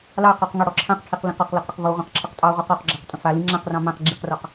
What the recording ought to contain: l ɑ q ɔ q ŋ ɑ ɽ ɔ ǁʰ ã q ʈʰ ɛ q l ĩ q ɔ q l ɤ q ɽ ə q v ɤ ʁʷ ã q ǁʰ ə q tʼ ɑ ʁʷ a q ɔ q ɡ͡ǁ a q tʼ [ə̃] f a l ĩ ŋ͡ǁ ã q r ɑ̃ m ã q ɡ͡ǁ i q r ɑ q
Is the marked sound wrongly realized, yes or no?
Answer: no